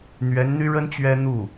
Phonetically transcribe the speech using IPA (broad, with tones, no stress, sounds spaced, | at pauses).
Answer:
n̪ ɥ ɛ˧˥ n n̪ y˥ ɻ ə˥ n t͡ɕ ɥ ɛ˥ n̪ u˥˩